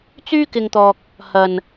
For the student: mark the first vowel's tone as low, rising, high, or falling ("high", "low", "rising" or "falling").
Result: high